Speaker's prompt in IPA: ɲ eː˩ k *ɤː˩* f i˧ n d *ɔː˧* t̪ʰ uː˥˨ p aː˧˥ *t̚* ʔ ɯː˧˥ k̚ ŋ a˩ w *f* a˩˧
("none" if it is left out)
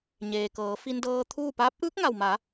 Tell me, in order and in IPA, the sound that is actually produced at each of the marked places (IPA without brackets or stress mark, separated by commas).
ɤː˩˧, ɤː˧, p̚, m